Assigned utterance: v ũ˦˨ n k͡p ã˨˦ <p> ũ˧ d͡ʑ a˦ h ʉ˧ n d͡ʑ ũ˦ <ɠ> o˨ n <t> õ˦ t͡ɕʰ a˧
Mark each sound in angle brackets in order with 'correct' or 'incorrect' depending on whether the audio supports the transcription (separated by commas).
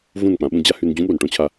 incorrect, correct, incorrect